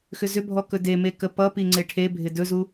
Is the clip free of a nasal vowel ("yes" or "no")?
yes